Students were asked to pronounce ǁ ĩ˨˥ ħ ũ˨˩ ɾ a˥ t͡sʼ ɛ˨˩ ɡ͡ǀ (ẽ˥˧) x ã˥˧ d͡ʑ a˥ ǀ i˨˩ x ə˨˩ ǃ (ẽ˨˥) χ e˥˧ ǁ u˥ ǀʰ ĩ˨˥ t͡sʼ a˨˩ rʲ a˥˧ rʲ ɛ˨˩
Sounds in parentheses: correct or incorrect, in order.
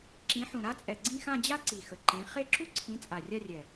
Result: incorrect, correct

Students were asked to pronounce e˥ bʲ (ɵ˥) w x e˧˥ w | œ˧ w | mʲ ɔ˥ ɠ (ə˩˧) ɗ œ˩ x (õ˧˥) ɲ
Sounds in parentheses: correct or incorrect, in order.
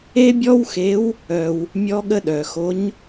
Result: incorrect, incorrect, incorrect

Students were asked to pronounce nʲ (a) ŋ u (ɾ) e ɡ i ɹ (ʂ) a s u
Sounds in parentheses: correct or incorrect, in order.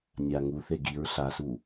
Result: correct, incorrect, incorrect

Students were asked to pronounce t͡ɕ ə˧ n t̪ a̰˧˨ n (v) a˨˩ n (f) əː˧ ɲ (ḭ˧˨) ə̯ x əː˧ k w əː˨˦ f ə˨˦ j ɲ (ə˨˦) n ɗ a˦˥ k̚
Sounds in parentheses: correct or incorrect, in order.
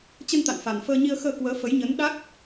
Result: incorrect, correct, incorrect, correct

